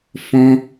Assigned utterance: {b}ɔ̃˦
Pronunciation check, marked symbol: incorrect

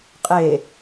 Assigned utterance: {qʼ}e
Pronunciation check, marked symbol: correct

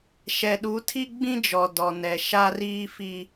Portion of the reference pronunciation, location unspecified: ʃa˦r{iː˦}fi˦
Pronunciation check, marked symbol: correct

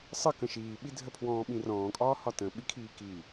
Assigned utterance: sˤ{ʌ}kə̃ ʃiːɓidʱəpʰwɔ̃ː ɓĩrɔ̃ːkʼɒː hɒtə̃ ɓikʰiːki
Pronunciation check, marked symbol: incorrect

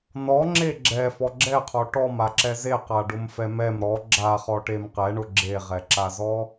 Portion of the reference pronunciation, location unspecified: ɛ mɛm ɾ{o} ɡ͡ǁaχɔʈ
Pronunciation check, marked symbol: incorrect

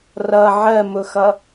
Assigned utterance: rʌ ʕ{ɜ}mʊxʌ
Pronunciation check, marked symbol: correct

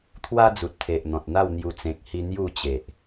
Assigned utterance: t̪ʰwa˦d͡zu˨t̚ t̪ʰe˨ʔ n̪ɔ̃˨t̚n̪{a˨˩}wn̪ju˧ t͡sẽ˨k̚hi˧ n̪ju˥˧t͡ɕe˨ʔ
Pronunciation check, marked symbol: incorrect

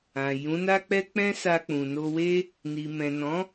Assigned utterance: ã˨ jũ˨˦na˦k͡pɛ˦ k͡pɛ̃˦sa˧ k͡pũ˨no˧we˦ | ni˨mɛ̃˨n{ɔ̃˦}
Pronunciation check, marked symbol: incorrect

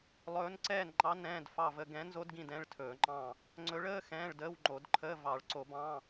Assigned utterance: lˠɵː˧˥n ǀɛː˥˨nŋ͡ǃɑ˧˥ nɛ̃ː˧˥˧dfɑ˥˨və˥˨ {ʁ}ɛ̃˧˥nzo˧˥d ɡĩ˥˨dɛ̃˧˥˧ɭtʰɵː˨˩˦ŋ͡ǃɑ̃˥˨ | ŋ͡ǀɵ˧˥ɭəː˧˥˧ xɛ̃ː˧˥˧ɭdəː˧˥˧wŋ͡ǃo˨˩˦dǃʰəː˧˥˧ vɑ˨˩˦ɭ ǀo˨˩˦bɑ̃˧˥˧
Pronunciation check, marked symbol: incorrect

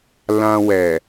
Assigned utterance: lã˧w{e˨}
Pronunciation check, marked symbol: incorrect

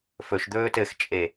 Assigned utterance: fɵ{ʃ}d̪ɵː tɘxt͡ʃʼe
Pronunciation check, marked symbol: correct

